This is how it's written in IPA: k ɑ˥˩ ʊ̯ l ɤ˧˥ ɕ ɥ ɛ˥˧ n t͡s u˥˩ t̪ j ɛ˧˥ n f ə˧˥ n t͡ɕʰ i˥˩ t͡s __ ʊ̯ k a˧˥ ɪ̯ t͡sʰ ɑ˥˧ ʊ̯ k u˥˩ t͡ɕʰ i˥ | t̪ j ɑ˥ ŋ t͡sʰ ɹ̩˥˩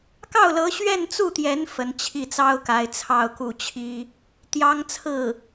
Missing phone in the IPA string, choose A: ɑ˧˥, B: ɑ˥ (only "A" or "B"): B